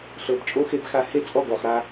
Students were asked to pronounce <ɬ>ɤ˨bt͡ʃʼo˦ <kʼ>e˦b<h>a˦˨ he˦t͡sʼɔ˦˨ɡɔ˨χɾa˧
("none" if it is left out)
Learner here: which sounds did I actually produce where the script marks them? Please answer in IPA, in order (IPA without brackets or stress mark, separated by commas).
ɬ, x, x